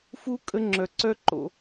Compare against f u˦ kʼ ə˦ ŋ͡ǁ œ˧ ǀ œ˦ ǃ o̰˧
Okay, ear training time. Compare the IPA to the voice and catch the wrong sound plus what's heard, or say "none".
none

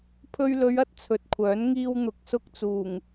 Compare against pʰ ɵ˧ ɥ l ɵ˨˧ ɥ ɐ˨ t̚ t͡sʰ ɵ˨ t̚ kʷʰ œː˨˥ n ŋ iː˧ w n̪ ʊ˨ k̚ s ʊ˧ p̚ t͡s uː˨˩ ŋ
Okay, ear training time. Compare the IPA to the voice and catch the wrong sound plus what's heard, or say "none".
p̚ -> k̚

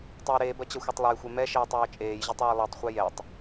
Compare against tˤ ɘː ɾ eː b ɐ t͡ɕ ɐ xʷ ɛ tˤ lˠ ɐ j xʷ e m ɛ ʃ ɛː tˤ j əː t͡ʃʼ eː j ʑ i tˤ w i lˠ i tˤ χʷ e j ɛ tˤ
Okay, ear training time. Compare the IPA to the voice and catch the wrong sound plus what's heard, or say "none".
ɘː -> ɛː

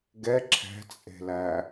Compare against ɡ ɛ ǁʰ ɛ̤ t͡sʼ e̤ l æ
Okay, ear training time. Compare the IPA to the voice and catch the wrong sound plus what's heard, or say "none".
none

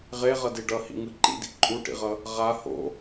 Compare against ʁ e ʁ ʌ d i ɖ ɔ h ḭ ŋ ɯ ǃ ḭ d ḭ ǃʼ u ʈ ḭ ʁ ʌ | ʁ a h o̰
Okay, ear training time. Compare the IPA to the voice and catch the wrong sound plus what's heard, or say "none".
ɔ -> ʌ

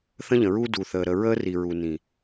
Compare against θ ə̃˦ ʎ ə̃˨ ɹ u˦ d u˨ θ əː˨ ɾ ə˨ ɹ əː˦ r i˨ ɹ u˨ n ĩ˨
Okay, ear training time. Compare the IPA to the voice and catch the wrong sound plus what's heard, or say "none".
none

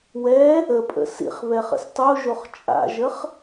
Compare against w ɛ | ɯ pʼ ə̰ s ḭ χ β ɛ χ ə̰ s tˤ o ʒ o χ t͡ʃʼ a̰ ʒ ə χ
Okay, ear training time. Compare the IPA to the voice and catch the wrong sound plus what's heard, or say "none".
ɯ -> ə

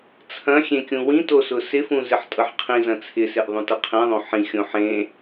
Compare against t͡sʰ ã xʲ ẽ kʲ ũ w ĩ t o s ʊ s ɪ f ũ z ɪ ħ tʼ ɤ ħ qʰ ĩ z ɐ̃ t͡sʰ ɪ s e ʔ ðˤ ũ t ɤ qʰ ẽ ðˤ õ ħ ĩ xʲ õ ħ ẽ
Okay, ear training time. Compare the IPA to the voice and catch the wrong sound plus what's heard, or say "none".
ã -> ɐ̃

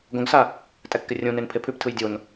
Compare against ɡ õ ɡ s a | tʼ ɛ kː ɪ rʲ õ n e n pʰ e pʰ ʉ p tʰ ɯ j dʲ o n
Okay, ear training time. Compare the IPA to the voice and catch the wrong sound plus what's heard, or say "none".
none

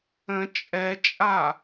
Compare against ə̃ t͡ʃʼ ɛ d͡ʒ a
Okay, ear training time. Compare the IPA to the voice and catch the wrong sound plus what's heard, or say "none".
d͡ʒ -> t͡ʃʼ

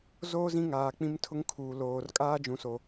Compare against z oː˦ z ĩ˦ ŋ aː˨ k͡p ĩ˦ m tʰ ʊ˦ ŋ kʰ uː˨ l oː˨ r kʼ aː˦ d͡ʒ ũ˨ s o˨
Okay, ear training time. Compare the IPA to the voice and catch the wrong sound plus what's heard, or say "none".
none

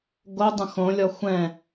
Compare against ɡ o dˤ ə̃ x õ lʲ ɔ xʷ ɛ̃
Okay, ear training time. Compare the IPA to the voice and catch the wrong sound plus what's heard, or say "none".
none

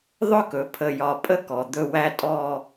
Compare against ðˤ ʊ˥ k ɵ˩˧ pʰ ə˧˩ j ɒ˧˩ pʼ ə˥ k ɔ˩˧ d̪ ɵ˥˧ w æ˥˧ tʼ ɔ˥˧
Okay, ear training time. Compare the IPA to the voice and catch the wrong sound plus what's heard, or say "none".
none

